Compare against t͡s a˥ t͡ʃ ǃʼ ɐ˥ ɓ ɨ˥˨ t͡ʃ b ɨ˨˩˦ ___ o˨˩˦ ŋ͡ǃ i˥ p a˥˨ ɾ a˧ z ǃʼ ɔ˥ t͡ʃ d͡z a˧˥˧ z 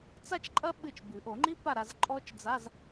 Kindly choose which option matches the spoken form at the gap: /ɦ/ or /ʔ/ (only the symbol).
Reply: ʔ